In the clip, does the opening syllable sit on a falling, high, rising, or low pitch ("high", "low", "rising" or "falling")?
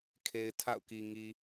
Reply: low